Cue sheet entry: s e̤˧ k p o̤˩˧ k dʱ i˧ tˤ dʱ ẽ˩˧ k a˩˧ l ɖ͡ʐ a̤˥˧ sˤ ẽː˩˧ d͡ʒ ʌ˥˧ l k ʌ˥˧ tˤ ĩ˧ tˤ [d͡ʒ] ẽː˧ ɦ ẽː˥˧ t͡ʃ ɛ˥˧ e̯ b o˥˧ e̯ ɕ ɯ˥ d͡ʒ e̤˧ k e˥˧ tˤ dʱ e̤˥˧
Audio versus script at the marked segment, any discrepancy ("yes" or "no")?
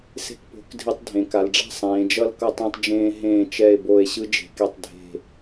no